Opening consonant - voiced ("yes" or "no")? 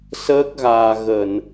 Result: no